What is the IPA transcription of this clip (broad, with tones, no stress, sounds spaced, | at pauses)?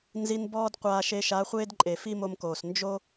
n z i˧ n b ɔː˦ d qʷ aː˧ ʃ e˧ ʃ a˨˦ χʷ eː˦ d ǃʼ e˨ f i˦ m o˧ m k oː˨ s n d͡ʒ o˦